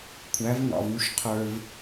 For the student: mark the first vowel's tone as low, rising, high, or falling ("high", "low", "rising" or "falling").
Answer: rising